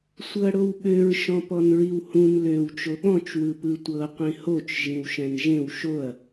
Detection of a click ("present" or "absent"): absent